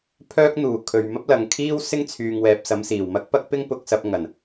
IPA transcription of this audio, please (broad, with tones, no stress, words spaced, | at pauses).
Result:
pʰœː˥k̚n̪uː˨˩ kʰɵ˨ɥmɐ˥p̚lɐ˨ŋkʰiː˥w sɪ˥ŋt͡sʰyː˨ŋwɛː˨p̚ sɐ˨˧msiː˨˩wmɐ˥k̚pɐ˥k̚ pɪ˥ŋpʊ˧k̚sɐ˧p̚ ŋɐ˨˩n